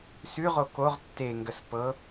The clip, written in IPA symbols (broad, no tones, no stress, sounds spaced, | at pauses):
s ʉ ʁ o k o ʁ tː e ŋ ɡ ə s p ɤ